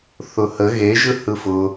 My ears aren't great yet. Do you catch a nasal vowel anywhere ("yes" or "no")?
no